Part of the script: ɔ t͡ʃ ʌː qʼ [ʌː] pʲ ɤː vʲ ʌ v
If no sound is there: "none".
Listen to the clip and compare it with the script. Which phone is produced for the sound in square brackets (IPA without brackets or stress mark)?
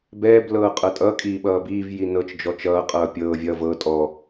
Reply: ʌː